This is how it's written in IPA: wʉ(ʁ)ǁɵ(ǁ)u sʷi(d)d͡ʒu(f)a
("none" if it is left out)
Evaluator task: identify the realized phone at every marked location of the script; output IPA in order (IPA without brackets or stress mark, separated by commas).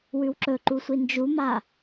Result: w, ǃ, n, m